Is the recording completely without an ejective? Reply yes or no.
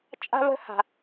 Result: no